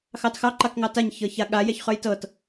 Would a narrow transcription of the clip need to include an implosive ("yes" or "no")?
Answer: yes